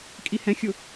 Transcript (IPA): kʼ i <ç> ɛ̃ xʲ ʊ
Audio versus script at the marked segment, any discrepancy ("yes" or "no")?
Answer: yes